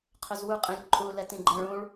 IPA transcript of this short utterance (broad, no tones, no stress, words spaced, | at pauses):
qʰʏzwuqʼĩlʲ ǃʼu lɛtĩɡ͡ǃɛ̃ɭ ũɭ